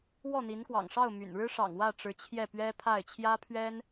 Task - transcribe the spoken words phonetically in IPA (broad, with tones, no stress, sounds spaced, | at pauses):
w ɔ˥˩ n̪ i˧˥ n k w ɑ̰˨˩ ŋ ʂ ɑ˥˩ ʊ̯ m y̰˨˩ n ɻ ɻ̩˥ ʂ ɑ̰˨˩ ŋ w ä˥˩ ʈ͡ʂ ɻ̩˧˥ t͡ɕʰ j ɛ˥˩ p ɥ ɛ˥ pʰ a˥˩ ɪ̯ t͡ɕʰ j ä˥ pʰ ɥ ɛ˥ n